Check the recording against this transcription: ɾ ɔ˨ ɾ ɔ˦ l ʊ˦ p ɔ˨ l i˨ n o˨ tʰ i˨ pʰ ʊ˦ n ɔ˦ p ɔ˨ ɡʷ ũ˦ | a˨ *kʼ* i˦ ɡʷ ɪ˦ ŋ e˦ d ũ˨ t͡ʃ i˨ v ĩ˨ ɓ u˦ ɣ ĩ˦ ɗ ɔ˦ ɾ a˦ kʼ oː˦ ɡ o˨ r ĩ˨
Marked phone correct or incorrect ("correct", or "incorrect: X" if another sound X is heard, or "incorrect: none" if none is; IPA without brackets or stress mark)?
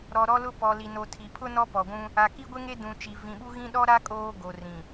incorrect: k